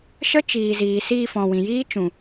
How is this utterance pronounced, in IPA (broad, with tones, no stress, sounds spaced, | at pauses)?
ʃ ə˦ t͡ʃ iː˨ z iː˨ s iː˧ f ɔ̃˨ w ĩ˨ j iː˦ t͡ʃ ũ˨